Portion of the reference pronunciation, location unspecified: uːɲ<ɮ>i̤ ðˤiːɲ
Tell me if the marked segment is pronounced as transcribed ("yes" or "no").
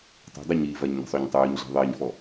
yes